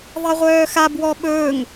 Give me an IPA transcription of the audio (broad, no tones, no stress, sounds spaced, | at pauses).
ðˤ ɛ ʁʷ œː x a b w ɔ ɓ ɵː ŋ